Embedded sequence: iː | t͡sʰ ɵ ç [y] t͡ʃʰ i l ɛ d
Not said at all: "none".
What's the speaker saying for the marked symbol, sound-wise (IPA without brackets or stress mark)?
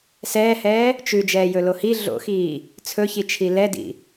i